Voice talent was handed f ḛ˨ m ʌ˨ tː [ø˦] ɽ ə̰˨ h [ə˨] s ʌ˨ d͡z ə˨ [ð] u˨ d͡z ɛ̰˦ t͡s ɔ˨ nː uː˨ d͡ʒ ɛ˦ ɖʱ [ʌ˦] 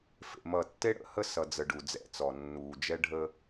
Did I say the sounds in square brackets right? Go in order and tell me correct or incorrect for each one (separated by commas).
incorrect, incorrect, incorrect, incorrect